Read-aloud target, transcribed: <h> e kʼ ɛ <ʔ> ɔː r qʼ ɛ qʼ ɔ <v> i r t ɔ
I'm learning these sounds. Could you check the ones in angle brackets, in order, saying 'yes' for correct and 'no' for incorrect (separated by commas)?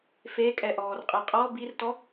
no, yes, no